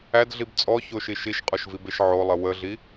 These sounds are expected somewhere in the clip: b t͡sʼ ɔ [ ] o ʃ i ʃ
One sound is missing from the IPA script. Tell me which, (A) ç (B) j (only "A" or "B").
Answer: A